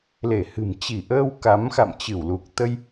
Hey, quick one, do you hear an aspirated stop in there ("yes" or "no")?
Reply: no